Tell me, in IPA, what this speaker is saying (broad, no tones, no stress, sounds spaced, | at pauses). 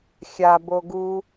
xʲ a b o ɡ u